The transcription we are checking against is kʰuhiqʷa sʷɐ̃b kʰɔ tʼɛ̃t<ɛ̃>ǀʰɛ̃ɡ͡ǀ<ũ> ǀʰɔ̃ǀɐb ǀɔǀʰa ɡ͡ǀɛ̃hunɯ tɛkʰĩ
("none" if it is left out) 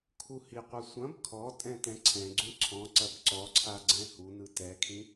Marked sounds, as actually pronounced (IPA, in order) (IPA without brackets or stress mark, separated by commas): ɛ̃, ũ